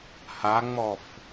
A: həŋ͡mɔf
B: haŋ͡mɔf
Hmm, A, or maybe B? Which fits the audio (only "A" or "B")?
B